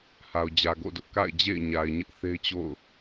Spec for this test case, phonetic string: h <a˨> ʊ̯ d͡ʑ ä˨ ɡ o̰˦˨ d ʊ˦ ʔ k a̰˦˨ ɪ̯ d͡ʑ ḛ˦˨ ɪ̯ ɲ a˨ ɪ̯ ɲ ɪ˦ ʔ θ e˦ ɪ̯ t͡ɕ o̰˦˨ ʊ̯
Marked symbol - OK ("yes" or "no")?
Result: yes